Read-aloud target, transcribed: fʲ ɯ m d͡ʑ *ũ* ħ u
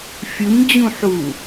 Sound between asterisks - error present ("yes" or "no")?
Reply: no